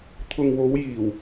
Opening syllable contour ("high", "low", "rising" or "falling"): low